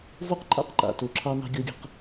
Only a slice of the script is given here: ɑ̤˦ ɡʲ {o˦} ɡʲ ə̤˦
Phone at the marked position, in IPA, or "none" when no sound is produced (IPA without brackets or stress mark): o˦